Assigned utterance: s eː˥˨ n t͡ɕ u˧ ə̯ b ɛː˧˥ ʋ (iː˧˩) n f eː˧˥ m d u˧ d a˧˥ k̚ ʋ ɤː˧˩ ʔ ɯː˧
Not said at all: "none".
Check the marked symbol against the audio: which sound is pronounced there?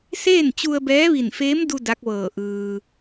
i˧˩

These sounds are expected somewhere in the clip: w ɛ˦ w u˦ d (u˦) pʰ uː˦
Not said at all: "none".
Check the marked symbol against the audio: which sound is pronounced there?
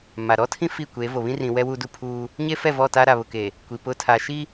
u˦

